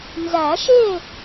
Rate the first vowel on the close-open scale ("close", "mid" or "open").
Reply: open